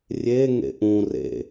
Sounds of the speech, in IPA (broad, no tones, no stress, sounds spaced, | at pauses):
rʲ e ŋ ḛ ʔ ũ r ḛ